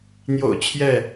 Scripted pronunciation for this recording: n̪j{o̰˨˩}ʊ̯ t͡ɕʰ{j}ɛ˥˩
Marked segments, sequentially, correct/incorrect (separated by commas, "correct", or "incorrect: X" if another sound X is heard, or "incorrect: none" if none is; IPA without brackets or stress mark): correct, correct